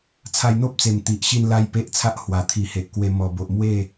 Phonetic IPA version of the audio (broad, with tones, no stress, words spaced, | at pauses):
t͡sʰa˧jn̪o˦p̚t͡se˨˩m t̪i˨ʔɕi˥˧nla˦j pe˦ʔt͡sʰa˦ʔhwa˨˩ t̪ʰi˨˩ he˨ʔkwe˧ mɔ˨˩bo˨ʔmwe˥˧